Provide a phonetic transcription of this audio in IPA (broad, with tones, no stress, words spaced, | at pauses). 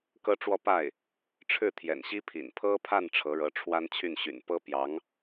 kɤ˥ʈ͡ʂwɔ˥˧pa˥˩ɪ̯ | ʈ͡ʂʰɻ̩˥˩t̪ʰjɛ̰˨˩nɕi˥pʰḭ˨˩n pʰɤ˥pʰa˥˩n ʈ͡ʂʰɤ˧˥ɻɤ˧˥ ʈ͡ʂʰwa˥n t͡ɕʰy˥˩nɕy̰˨˩n pɤ˥pjɑ˧˥ŋ